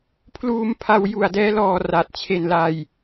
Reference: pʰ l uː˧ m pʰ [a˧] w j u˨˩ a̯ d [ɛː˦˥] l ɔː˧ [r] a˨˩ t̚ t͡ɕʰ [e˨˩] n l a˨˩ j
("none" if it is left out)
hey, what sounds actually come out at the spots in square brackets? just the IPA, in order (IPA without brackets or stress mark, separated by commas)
a˧, ɛː˦˥, r, e˨˩